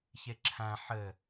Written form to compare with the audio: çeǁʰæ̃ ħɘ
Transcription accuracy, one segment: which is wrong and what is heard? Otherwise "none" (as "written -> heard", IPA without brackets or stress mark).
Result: none